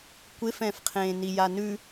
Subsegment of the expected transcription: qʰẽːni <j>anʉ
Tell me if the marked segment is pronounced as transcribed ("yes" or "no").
yes